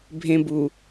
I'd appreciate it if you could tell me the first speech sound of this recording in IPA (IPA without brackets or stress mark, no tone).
bʱ